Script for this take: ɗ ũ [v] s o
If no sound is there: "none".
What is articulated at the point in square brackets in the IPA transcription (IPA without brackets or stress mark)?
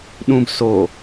b